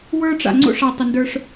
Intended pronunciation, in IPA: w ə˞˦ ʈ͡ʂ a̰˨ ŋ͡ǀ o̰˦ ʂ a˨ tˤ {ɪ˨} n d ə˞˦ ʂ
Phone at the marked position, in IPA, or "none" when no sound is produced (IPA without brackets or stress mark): ɪ˨